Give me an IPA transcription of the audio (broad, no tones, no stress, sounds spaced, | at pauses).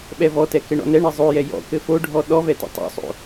ɓ ɛ v ɔ t ɛ k ɘ ɳ ɔ̰ n ɛ ɳ ɛ zˤ o j ɛ j ɔ̰ k ɘ f o ɖʱ ɔ ɗ ɔ v ɛ t ɛ̰ tˤ o̰ sˤ o̰